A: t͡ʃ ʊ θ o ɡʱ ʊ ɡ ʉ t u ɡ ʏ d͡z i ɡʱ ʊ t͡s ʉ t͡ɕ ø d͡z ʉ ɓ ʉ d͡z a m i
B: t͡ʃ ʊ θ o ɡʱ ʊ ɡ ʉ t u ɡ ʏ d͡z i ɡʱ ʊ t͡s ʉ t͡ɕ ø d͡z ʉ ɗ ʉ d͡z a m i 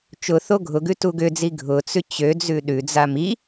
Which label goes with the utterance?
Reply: B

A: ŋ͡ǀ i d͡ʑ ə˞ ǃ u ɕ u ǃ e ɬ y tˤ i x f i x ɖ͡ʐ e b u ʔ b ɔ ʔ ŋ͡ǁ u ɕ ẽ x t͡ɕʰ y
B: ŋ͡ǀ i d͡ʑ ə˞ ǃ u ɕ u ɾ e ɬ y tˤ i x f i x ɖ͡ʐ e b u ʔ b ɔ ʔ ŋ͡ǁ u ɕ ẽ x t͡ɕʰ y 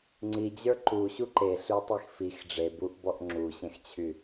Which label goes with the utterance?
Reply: A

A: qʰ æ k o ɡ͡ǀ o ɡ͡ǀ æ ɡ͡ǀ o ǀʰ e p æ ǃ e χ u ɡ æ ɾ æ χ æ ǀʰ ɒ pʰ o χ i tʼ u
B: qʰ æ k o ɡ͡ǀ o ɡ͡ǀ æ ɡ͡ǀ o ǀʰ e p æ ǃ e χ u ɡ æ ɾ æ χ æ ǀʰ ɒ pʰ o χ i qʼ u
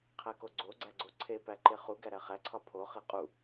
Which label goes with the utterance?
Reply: B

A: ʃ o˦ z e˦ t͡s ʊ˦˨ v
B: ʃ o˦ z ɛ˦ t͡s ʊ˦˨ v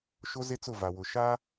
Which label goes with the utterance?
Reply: A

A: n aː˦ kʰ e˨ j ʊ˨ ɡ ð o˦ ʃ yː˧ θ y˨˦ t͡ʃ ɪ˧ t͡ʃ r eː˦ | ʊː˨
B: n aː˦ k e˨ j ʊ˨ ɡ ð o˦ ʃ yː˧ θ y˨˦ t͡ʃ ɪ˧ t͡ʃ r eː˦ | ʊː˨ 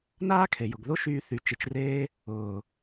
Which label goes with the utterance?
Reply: A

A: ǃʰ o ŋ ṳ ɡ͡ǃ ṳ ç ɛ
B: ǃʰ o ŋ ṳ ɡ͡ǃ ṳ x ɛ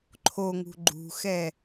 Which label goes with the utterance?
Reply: B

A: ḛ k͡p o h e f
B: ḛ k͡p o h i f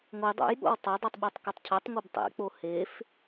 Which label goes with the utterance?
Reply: A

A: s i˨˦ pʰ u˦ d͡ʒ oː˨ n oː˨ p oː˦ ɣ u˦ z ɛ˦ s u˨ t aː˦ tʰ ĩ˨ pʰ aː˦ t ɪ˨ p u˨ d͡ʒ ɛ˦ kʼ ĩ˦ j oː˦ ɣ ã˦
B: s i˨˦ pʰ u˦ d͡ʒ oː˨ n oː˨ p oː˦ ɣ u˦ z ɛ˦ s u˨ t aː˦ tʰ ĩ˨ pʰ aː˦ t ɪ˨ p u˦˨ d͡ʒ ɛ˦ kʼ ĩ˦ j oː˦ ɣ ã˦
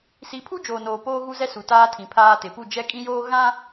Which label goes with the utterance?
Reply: B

